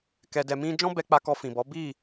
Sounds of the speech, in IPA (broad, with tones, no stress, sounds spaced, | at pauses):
k ɛ˨ d ɛ˨ m ĩ˧ d͡ʒ ɔ̃˦ b ɛ˧ k͡p a˧ k ɔ˧ f ĩ˨ b ɔ˨˦ b i˦˨